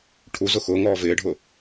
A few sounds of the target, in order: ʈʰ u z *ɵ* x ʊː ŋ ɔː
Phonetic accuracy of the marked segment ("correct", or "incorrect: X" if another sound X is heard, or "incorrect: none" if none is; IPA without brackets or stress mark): incorrect: ʊ